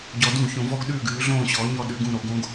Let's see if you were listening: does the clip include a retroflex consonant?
no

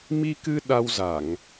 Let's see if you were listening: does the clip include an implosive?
yes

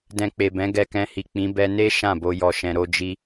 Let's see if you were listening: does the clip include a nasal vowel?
yes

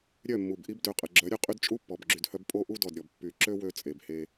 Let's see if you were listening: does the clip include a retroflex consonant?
no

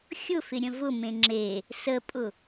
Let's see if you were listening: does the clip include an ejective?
yes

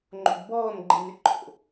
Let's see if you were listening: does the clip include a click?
yes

